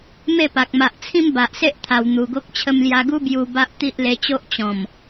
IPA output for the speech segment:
m e˥˧ p a˨ k̚ m a˨ ʔ t͡sʰ ĩ˦ m b a˨ ʔ s e˦ ʔ t̪ʰ a˨˩ w n̪ u˨˩ ɡ o˦ k̚ t͡ɕʰ ə˧ m l j a˧ ɡ u˦ b j u˧ b a˦ ʔ t̪ i˦ ʔ l e˧ t͡ɕ o˦ ʔ t͡ɕ ɔ̃˨˩ m

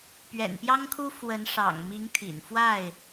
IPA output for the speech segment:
p ɥ ɛ̰˨˩ n p j ɑ˦ ŋ kʰ u˦ f w ə˨˦ n ʂ ɑ̰˨˩ ŋ m i˨˦ ŋ t̪ʰ ḭ˨˩ n f w a˥˨ ɪ̯

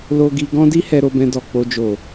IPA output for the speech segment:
l o˧ ɡ i˧ ɡ ɔ̃˦ d i˦ h ɛ˧ ɾ o˧ b ɛ̃˧ d ɔ˨ k͡p o˧ d͡ʒ o˨

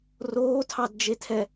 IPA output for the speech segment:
r oː tʰ ɑ d d͡ʒ e tʰ ɛ

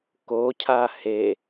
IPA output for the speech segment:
k o cʰ a h e

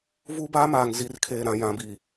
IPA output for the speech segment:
v u˦ b aː˦ m aː˨ ŋ z i˨ r kʰ eː˨ ɾ ã˨ j ã˨ b i˨

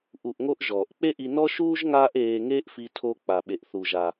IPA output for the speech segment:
ʔ u˧ ʔ ŋ o˥ ʔ ʒ ɔː˩ ʔ k͡p e˥ ʔ i˧ n ɔ˥ ʃ uː˥ ʒ ŋ aː˥ ʔ eː˧ ŋ eː˥ ʔ f i˧ tʰ o˧ k͡p a˩ ɓ e˩ ʔ θ u˩ ʒ a˩

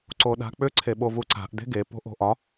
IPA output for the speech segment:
ǀ o ɗ a̤ k͡p ʏ ǀʰ e ɓ o v u ǀ a̤ ʔ d e̤ ɡ e p o̤ ʔ o̤ ʔ ɒ

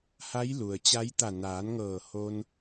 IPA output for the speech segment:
h a˧˥ j l u˩ ə̯ t͡ɕ a˧˥ j t̪ a˧˩ n aː˩˧ n ŋ ɤː˧˩ h o˧ n

